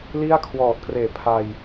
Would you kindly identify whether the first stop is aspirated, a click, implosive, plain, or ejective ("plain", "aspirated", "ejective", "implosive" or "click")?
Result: aspirated